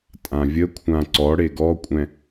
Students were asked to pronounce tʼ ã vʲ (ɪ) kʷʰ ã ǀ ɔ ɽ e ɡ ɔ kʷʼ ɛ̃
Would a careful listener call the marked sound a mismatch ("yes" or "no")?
yes